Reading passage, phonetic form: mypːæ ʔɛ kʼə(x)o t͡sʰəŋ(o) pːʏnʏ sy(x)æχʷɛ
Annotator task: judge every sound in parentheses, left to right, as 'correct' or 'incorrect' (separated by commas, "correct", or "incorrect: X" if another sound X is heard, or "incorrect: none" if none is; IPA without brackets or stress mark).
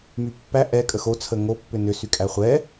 correct, correct, incorrect: kʼ